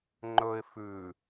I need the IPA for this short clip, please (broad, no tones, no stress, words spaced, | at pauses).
ŋ͡ǃɵɪ̯ fʉ